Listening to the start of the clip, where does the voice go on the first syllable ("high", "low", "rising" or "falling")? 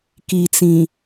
low